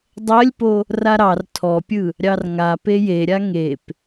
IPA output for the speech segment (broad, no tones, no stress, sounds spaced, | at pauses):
dˤ ɜ lʲ p o | r a ɾ ɑ r tʰ ɔ pʲ ɯ | ɾʲ ɑ r ŋ a p e j e ɾʲ a ŋ e p